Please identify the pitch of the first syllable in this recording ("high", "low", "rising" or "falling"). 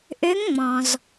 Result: rising